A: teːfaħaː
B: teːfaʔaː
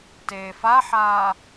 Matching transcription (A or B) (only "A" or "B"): A